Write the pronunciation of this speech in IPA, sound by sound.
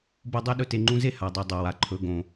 b o˥ dˤ i˥ ɗ ɵ˦ t e˨ ŋ͡ǃ ũ˦ z e˥ h a˩ dˤ ʉ˨ dˤ o˩ w a˩ ǃʰ ɵ˨ ɡ õ˩

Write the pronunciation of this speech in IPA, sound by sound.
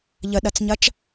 ʎ ə ɗ ɐ t͡s ɲ ɐ t͡ʃ

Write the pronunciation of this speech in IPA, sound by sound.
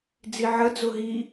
d͡z i ʕ ə d͡z ʊ ɦ i

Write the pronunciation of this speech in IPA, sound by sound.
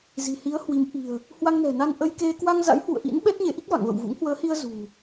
z i̤˨˩ h i˨˦ ə̯ h w i˨˦ m ʔ i̤˨˩ ə̯ | h w a˧ ŋ n ɛ̤˨˩ n a˧ n ʔ ə˧ j k e˧ k w a˧ ŋ z a̰˧˥ j h w ṵ˧˨ ə̯ ʔ ḭ˧˥ n ɓ ɛ˦˥ t̚ ɲ e˨˦ ʔ i˦˥ k̚ v a̰˧˨ ŋ v ə̰˧˨ w v ṵ˧˥ ŋ h w əː˨˦ h i˧ ə̯ z ṳ˨˩

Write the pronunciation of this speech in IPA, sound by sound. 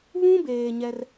β ũ˦ b eː˨ ɲ ɛ˦ r

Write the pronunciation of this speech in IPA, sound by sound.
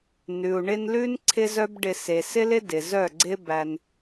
n ʉ˨ u̯ ɳ ɪ˧ n l ʉ˦ n ǀʰ ɪ˦ z œ˦ b ɖ ɪ˧ s e˨ s ɪ˦ l ɪ˦ d ɪ˨ z œ˦˨ ɡ͡ǀ ɪ˦ b æ˧ n

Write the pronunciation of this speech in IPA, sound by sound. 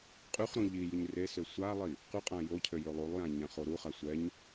qʼ y χ ɾ ũ ʎ i j y ɲ r e s ø sʷ a lˠ i | q y qʼ ã j o cʰ ø j ø lˠ u lˠ j ã ɲ ã χ o ɾ u χ a sʷ ɛ ɲ

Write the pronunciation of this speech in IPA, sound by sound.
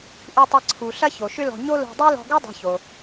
ʔ u˧ tˤ ɐ˧ ǀʰ u˩ ɬ ɐ˥ ç o˩ ʃ ʏ˥ l ɔ̤˧ ɲ o˥ l o̤˧ dˤ u˥ l ɔ̤˧ ɡ u˥ dˤ o̤˧ ç o˩

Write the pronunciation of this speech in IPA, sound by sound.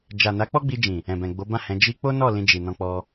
d͡ʒ a˨ n a˨˦ k͡p ɔ˦ ɡ͡b i˧ d͡ʒ ĩ˨ | ɛ̃˨ b ɛ̃˨ ɡ͡b o˨˦ b ã˦˨ h ɛ̃˨˦ d͡ʒ i˧ k͡p o˦ n ɔ˦˨ l ĩ˧ d͡ʒ i˨ n ɔ̃˧ k͡p ɔ˧

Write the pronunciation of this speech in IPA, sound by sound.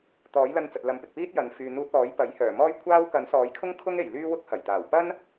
t̪ ɔː˨˥ j l ɐ˧ n t͡s ɐ˨ t̚ l ɐ˨˥ m p ɪ˨ k̚ p iː˥ t̚ j ɐ˨ n f yː˨ n̪ uː˧ t̚ ɔː˨˥ j p ɐ˨˥ j h œː˨˩ m ɔː˥ j kʷʰ aː˥ w k ɐ˨˥ n s ɔː˨˥ j kʰ ʊ˥ ŋ kʰ ʊ˥ ŋ e˨˩ j l yː˥ w ʊ˥ k̚ h ɐ˨˩ j t̪ aː˨˩ w p ɐ˥ n

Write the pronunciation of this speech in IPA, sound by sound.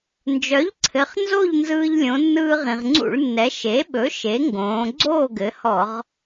n d͡ʒ œ˩˥ ʎ ǀʰ ɘ˩˧ χ n z o˥˨ ʎ n z ɯː˧ ʎ lʲ õ˩˧ nː ɯː˧ ʁ ĩ˩ ʁ ŋ͡ǀ ṵ˧˩˧ ɭ nː ɛ˩˧ ʃ e˩˥ ɓ ɵ˩˥ ʃ e˩˥ ŋ ɡ õː˩˧ ɡ͡ǀ oː˥˨ ɡ ɘ˩˧ h ɔ˧˩˧ ʁ

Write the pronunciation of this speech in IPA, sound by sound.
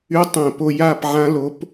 y˦˥ tˤ æ̃˥˧ p o˥˧ j a˥˧ p ʕ ã˦˥ l o˦˥ p

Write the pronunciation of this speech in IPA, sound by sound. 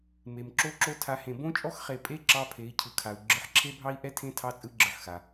m e˧ m ǁ o˥ ǁ o˥ tʰ a˧˥ h ẽ˧ b õ˥ t͡ʃʼ ɔ˥ x χ e˧ pʼ e˥ ǁ ɑ˥ pʰ e˧˥ i̯ cʰ ɯ˧ kʰ a˧ u̯ ɡ͡ǁ ɯ˧˥ ħ ǁʰ e˥ bʱ ɑ˥ i̯ ʔ ɛ˥ tʰ ẽ˥ tʰ ɑ˥ t͡sʼ ɯ˥ ɡ͡ǁ ɯ˧ ħ x a˧

